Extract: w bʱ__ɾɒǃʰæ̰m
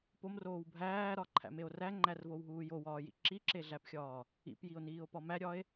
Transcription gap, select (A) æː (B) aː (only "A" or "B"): A